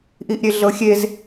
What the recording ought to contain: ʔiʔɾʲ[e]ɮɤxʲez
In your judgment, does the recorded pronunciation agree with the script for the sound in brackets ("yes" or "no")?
yes